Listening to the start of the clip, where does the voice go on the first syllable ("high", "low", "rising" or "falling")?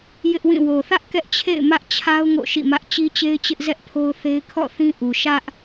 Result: high